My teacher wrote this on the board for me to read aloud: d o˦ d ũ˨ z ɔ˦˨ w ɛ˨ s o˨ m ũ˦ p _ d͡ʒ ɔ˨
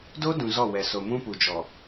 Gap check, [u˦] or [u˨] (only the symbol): u˨